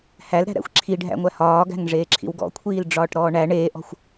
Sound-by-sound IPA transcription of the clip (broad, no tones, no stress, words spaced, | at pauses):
hælɾæ̤ ɾæ̰xʷǁʰiɖʱæ̰ ŋʷæhɒːɡæ̤ŋ ʐeːǁʰḭwɡɔ̰kʷʰiːl ɖ͡ʐɒːʈɾɔːɳæ ɳeːʔɔ̤xʷ